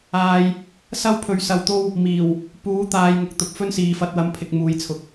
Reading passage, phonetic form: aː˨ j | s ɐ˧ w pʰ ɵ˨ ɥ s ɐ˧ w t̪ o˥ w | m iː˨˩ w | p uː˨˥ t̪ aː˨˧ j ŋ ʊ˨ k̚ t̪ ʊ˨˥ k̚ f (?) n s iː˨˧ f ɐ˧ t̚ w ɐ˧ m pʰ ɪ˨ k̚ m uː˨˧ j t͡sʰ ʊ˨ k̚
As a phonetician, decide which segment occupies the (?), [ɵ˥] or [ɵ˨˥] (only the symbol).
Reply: ɵ˥